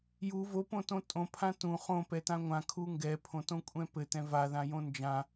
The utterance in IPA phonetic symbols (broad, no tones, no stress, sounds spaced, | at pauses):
j u v o p õ t õ tʼ õ pʰ ã t ũ χ õ p ɛ t ã ŋʷ ã kʰ u ŋ ɡ ɛ pʰ õ t õ kʷʼ ɛ̃ p ɘ t ɛ̃ v a ð ã j õ n d͡ʒ ã